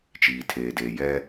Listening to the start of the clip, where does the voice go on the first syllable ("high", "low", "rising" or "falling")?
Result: low